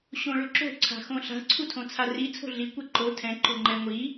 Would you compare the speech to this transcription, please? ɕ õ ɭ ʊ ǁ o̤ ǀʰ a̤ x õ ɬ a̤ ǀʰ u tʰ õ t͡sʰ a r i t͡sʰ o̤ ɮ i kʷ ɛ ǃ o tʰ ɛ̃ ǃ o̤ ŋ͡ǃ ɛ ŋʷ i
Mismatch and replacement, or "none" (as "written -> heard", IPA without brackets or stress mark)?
none